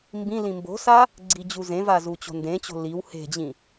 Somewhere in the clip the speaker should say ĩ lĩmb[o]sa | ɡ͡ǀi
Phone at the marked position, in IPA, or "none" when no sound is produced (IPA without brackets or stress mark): o̤